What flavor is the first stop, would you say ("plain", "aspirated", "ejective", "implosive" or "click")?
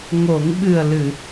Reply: implosive